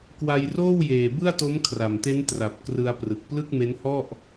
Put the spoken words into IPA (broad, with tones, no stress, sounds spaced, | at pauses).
k w a˧ j r oː˥˩ w j eː˨˩ b ɯ˥˩ a̯ t o˦˥ m kʰ r a˨˩ m t e˦˥ n t r a˨˩ p̚ k r ɯ˧ a̯ p r ɯ˨˩ k̚ p l ɯ˥˩ k̚ m e˦˥ n h ɔ˥˩ ʔ